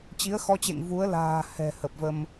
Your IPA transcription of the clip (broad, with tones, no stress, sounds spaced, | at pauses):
t͡ɕ i˨˦ ə̯ x ɔ˧ t͡ɕ ḛ˧˨ ŋ v u˨˦ ə̯ l a̤ː˨˩ h ɛ̤˨˩ h ə˨˩ p̚ v ə˧ m